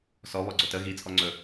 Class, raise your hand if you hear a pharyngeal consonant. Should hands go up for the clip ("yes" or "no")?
no